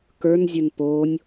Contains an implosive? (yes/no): no